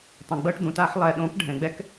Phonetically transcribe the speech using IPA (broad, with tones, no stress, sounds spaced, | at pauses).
tˤ ẽ˨ ɡ͡b ɤ˦ ʈ d̪ ũ˨ t a˧ ħ lˠ ɛ˨ ɗ õ˨˦ k ɖʱ ɛ̃˨ ɡ͡b ɛ˦ k